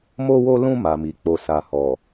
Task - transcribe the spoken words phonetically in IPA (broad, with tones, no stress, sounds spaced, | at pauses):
m o˧ w o˧ l ũ˧ m a˨ m i˨ k͡p o˧ s a˧ h ɔ˨